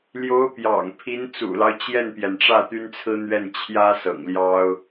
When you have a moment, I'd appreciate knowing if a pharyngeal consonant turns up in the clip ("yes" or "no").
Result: no